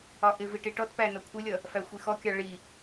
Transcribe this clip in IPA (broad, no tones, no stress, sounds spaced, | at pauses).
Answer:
ɒ ʔ ɪ v i ʈ i ʈ ɔ t p æ n ʌ kʷʰ ɪ lʲ ʌ | f æ xʷ i x ɔ kʲ ɑ ɭ i